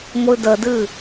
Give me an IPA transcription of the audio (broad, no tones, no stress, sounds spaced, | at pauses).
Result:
ŋʷ ɨ d ə d ɨ